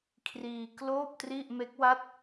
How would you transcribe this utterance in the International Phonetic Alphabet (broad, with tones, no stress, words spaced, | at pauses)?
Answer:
kʰriː˧kloː˥˩p̚tri˥˩ʔ me˦˥k̚wa˥˩t̚